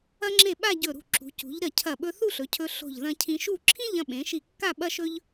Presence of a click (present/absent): present